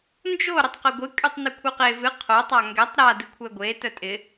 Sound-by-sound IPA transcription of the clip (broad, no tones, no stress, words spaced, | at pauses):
nd͡ʒo ɾətˤqɪɡʷɨ kʼytˤnykʷʰɨqe vɨ qʰo tˤaŋɡɛtˤ ɾa dɨkʷʰɛɡʷe tœtʼɪ